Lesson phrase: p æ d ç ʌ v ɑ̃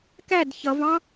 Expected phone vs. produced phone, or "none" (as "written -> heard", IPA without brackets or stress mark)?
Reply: p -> k